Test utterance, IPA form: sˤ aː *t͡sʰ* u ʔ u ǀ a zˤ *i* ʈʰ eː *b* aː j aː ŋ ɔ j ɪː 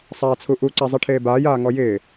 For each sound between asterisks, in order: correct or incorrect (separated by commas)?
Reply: correct, correct, correct